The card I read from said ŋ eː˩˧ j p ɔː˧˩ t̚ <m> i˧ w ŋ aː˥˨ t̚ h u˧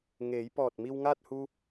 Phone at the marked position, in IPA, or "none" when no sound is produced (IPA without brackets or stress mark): m